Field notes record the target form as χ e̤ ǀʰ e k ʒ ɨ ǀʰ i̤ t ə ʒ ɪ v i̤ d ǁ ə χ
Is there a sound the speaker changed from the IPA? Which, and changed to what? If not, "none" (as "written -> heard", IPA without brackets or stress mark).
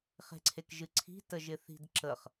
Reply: v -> θ